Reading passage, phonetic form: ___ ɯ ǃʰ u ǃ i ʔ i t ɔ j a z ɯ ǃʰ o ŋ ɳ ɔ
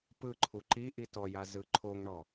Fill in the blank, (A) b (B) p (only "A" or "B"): B